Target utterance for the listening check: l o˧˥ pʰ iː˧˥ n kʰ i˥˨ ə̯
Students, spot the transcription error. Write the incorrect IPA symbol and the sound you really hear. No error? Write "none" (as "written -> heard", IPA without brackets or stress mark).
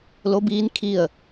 pʰ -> b